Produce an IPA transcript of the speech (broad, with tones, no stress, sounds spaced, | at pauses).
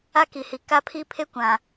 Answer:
a˦ k i˨ h i˨ k a˦ pʰ i˦ pʰ e˦ kʷ ã˨